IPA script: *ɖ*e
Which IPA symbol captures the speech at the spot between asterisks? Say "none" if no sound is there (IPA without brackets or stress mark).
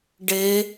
ɖ